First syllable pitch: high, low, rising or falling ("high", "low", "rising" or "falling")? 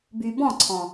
low